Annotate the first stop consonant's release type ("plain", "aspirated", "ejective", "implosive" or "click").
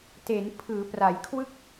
plain